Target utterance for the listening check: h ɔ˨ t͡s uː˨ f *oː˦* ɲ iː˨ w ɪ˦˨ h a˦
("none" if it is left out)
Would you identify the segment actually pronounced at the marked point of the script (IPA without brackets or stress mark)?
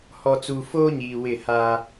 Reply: oː˦